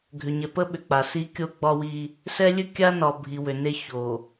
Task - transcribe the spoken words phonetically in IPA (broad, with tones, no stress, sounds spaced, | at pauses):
ɡʱ ʏ˨ ɲ ɛ˨ p ə˦ ɓ ʏ˨ k͡p a˨ s i˦ kʲ o˦ ɡ͡b ɒ˦ w i˦ | s ɛ˦ lʲ ɨ˦ kʲ a˦ n ɒ˨ bʱ i˨ w ʏ˨ n e˦ ç o˨